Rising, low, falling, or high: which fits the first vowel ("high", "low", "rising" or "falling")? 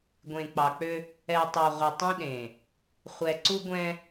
low